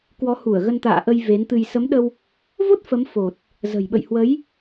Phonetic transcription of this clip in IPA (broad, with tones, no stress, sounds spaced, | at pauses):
k w ɔ˨˦ h u˧˩ ə̯ ɣ ə˧ n t̪ a̰ː˧˨ ʔ ə˧ j v e˨˦ n t̪ ɨ˧ j s ə˨˦ m ɗ ə˧ w | v o˦˥ t̚ f ə˨˦ m f o˨˩ t̚ | z ə̤˨˩ j ɓ ə̰˧˨ j h w ə˨˦ j